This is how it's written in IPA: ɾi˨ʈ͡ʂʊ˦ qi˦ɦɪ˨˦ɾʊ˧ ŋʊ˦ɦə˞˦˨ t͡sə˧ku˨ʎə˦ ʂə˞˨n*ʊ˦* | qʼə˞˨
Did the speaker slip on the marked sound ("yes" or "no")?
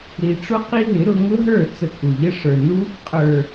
yes